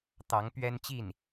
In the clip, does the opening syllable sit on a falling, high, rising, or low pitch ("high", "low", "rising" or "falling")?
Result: rising